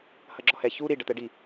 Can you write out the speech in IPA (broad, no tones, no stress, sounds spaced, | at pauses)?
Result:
h ɐ ɡ͡ǁ ɔ h ɛ ç u ɾ i ɖ ɐ t̪ ɛ ɖ i